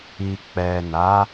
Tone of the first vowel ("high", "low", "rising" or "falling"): low